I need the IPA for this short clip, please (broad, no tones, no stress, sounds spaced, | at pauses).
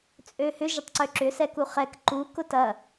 t͡sʼ ø h ʏ ʒ ɪ tˤ ǀ ø ǁ ʏ s ɛ k u χ ɛ k ǃ u k ʊ t ɐ